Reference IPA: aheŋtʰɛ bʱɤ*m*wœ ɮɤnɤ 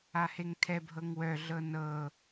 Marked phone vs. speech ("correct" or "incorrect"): incorrect